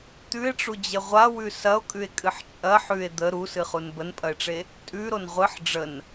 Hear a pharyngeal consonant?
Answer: yes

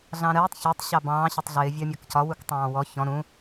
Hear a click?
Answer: no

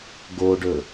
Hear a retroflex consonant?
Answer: yes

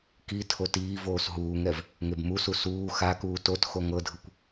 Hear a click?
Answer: no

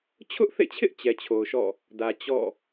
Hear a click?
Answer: no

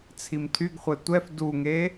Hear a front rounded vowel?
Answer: yes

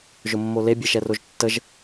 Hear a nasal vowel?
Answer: no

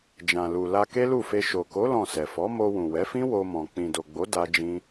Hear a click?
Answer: no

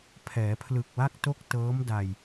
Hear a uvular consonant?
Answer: no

